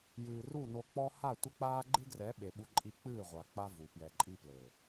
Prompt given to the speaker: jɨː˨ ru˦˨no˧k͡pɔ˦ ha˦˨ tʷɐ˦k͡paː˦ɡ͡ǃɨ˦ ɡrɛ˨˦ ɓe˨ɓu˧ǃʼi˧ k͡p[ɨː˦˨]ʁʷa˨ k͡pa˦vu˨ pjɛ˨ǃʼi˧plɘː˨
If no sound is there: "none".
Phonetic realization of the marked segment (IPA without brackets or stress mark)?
ɨː˦˨